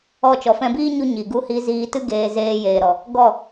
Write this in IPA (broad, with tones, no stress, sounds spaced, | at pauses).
ɔ˦˨ t͡ʃ ɔ˨ f ɛ̃˧ b iː˦ ɲ u˧ ɲ i˨ ɡ u˦ h i˧ z iː˧ t ɨ˦ ɡ eː˧ z eː˧ j eː˨ ɾ ɔ˨ | ɡ ɔ˦˨